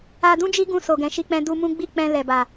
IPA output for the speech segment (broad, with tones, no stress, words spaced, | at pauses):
a˧dũ˦d͡ʒi˦ɡũ˧ so˨ɡɛ̃˨ʃi˧k͡pɛ̃˧ du˧mũ˦ɡ͡bi˦˨ k͡pɛ̃˧ lɛ˨ba˨